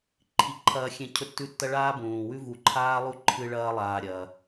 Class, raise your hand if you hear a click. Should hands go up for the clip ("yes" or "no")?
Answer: yes